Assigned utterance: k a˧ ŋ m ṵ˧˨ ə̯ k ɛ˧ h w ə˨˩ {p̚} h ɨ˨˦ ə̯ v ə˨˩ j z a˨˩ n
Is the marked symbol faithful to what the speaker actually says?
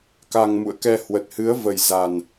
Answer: no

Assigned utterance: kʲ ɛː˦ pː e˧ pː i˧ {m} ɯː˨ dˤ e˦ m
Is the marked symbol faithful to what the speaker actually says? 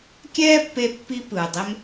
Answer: no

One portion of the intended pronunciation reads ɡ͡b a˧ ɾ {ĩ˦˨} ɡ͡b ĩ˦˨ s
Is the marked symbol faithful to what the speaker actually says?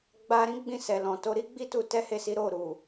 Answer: no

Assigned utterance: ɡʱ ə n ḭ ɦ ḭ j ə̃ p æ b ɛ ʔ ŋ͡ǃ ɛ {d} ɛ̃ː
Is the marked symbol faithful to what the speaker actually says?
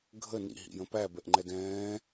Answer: yes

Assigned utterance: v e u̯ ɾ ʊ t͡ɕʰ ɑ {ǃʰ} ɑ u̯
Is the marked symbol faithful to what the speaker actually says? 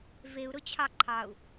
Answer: yes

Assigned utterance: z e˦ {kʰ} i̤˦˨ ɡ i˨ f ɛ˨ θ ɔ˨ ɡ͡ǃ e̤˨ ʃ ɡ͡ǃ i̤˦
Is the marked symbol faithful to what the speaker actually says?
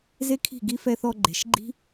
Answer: yes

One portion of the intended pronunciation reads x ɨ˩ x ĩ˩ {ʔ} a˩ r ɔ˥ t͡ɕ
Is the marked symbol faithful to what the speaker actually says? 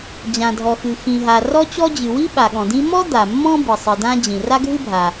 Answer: no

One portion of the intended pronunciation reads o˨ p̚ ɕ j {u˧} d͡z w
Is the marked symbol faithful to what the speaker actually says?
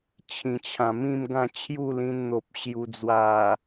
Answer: yes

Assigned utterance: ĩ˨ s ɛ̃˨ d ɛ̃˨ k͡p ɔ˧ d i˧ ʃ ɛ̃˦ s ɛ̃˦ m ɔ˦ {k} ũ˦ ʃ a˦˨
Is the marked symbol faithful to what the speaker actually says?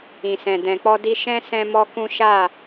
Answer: yes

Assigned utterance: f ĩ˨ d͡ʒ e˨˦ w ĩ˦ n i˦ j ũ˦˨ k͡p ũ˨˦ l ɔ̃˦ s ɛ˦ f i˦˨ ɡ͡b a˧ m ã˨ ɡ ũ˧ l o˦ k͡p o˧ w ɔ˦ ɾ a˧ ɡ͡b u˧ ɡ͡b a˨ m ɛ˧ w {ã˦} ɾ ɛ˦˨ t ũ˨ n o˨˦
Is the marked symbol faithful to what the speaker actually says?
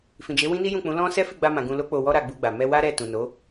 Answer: no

